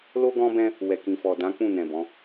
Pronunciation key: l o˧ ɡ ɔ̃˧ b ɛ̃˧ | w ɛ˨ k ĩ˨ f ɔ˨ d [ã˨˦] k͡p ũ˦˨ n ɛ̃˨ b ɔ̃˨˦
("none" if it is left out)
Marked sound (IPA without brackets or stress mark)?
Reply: ã˨˦